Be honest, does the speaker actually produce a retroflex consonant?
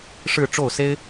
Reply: yes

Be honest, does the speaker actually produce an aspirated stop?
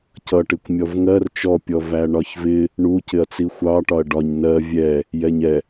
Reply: no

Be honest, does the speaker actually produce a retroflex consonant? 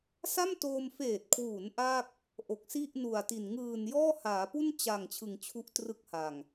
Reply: no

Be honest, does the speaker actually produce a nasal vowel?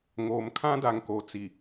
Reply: yes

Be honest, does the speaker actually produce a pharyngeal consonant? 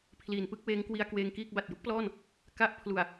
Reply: no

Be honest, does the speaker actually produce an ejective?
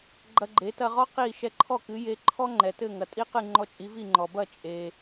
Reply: yes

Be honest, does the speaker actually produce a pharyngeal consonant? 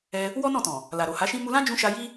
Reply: no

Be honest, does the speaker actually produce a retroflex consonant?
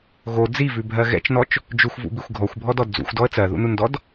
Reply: no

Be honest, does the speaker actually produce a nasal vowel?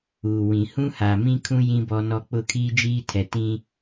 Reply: yes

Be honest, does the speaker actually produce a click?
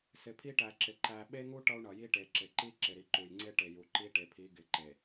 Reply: yes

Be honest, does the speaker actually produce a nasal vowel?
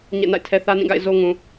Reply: yes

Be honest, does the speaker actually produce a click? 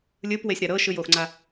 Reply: yes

